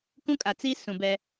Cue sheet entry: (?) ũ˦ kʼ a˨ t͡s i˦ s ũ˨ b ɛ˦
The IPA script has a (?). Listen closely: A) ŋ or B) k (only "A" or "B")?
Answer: B